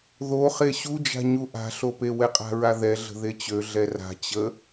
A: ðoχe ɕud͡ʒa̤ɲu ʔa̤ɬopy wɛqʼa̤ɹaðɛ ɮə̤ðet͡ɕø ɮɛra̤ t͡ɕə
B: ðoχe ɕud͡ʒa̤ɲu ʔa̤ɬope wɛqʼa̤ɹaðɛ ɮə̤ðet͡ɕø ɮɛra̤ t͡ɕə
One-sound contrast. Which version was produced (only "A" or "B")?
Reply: B